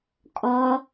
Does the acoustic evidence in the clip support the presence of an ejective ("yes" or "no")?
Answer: yes